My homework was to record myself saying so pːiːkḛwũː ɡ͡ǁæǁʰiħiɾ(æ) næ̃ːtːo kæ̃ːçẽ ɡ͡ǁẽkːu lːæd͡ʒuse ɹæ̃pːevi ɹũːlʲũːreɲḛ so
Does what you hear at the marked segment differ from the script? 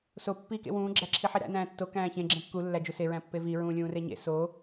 yes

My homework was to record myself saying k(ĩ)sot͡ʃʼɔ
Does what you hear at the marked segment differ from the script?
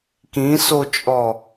no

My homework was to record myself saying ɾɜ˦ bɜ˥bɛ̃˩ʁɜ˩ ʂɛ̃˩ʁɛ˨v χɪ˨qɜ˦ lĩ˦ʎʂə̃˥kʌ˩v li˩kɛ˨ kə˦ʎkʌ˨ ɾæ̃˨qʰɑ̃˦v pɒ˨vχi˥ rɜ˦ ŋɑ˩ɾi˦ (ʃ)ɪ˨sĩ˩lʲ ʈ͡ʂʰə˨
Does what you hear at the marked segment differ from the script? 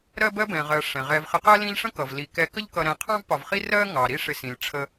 yes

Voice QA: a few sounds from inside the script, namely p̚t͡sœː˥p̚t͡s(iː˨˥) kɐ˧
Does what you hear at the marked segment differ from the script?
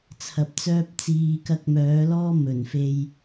yes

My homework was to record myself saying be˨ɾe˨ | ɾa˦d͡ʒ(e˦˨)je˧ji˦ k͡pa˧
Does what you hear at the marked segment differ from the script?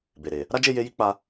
no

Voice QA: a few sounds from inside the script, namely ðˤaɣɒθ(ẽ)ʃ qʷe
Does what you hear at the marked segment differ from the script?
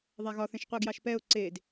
no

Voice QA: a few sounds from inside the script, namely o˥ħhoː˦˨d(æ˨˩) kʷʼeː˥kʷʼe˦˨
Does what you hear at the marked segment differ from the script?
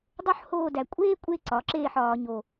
no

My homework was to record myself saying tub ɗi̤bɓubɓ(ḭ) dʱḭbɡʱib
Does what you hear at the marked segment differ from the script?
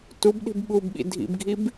no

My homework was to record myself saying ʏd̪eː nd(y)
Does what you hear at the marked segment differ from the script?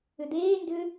yes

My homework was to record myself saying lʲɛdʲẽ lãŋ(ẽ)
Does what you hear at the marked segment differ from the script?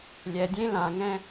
yes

